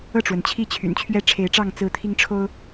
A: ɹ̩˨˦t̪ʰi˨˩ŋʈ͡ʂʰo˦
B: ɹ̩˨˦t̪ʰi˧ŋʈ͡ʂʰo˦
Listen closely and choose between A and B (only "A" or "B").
B